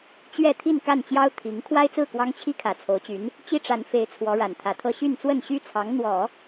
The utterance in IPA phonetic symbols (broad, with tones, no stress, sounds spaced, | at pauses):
t͡ɕ ɥ ɛ˥˧ t̪ʰ i˥˧ n k a˥˩ n t͡ɕ j ɑ˥ ʊ̯ t̪ʰ i˧˥ ŋ kʰ w a˥ ɪ̯ t͡s ɹ̩˥˩ k w ɑ˥ ŋ t͡ɕʰ i˥ kʰ ä˨˩ t͡sʰ o˧˥ ʊ̯ t͡ɕ y˧˥ n | t͡ɕ i˥ ʈ͡ʂ a˧˥ n f e˧˥ ɪ̯ t͡sʰ w ɔ˧˥ ɻ a˨˩ n t̪ʰ ä˧˥ t̪ʰ ɤ˥˧ ɕ y˥˧ n t͡s w ə˥˩ n ɕ y˥ t͡sʰ ɑ˧˥ ŋ n̪ w ɔ˨˩˦